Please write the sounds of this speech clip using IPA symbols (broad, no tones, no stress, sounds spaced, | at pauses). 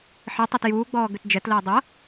ħ i tˤ e t j uː ɡ͡b ɔː ɡ ʏ t d͡ʒ ɛ t l əː dˤ ɐ